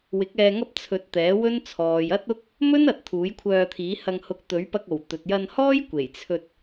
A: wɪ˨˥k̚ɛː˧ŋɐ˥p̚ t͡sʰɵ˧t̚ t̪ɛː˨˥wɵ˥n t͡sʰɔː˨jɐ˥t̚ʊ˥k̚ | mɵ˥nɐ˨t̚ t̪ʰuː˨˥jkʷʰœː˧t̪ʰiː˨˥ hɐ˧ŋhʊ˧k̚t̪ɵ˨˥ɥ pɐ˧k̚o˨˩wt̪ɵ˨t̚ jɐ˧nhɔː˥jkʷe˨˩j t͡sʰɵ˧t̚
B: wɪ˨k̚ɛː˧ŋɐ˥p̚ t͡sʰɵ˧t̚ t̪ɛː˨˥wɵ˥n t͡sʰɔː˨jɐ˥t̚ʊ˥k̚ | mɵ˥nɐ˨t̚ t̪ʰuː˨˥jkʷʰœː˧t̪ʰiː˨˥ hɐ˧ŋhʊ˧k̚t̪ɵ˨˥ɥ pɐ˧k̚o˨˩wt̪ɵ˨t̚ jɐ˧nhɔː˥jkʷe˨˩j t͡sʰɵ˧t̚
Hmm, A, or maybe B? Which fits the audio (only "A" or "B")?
A